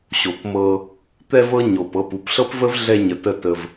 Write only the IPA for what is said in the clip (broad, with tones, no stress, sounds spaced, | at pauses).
ɕ o˨ p m ɤ˧ | t̪ ɛ˧ v ɤ˧ ɲ o˨ p ɤ˦˨ p u˧ p ɬ ɤ˦ p v ə˦ v ɮ ɛ˧ ɲ ə˨ t ə˦˨ t ə˧ v